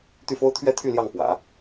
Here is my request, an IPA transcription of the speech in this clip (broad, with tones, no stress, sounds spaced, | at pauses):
t̪ y˥˩ f o˥ ʊ̯ t̪ʰ ɥ ɛ˥ t̪ʰ y˥˧ l j ɑ˥˩ ŋ p w ä̰˨˩˦